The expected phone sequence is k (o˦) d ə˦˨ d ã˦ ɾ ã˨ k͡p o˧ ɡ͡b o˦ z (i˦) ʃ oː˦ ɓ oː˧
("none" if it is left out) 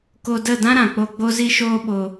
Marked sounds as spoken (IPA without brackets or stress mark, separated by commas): o˧, i˦